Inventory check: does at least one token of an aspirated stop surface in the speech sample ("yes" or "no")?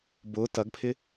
yes